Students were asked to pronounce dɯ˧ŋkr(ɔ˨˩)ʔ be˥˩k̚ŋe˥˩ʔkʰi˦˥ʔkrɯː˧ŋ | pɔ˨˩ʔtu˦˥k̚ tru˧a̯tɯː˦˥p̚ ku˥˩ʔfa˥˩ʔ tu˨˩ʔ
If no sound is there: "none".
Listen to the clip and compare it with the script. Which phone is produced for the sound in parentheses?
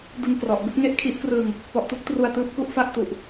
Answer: ɔ˨˩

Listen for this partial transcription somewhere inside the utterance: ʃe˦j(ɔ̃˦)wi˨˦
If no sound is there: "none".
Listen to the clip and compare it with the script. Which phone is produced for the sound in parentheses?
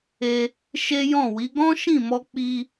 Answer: ɔ̃˦˨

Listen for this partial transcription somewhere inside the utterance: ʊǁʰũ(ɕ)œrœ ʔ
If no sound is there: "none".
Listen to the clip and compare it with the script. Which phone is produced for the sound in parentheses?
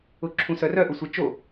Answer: s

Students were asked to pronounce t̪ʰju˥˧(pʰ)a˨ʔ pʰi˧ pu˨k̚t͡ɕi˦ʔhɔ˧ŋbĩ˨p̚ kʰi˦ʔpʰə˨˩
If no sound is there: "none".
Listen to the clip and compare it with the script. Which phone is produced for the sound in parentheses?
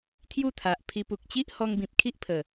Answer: t̪ʰ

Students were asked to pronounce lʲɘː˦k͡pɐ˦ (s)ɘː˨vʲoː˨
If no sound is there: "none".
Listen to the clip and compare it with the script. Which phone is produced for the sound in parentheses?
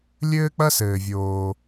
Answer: s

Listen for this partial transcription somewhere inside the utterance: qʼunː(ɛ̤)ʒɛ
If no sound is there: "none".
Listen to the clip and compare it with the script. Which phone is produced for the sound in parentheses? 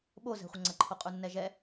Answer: ɛ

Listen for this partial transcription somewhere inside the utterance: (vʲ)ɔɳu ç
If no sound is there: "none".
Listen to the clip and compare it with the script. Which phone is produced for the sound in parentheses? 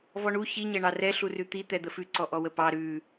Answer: v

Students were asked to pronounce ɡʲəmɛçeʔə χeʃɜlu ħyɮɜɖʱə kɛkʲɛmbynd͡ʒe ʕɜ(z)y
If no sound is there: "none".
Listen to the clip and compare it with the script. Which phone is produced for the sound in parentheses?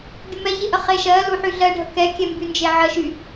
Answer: ʃ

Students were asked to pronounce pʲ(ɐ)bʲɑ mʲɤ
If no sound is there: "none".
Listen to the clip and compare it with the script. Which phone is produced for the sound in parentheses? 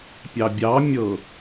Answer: ɑ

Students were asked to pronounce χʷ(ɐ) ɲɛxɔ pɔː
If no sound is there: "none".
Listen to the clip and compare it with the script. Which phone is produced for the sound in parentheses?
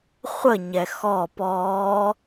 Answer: ə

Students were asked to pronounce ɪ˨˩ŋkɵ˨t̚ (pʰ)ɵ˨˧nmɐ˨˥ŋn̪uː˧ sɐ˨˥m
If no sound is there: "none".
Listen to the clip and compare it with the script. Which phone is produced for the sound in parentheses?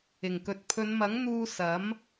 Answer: pʰ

